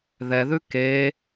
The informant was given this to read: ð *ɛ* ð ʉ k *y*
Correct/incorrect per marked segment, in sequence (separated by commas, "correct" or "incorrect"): correct, incorrect